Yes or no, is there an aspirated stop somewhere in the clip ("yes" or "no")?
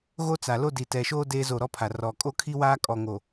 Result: yes